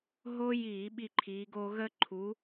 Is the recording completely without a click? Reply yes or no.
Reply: no